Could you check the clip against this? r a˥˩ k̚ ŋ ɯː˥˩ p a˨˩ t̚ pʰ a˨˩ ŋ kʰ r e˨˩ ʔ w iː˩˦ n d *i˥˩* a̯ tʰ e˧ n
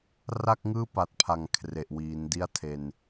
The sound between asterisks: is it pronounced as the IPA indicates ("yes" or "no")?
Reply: yes